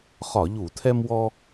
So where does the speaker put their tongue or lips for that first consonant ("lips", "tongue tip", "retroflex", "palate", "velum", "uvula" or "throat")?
uvula